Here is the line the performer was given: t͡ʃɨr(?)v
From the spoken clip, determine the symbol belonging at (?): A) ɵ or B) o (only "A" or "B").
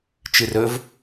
A